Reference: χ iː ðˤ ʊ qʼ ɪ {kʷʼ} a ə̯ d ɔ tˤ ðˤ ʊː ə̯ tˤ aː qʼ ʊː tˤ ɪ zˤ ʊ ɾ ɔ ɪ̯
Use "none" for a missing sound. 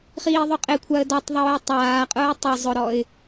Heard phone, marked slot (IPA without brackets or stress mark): kʷʰ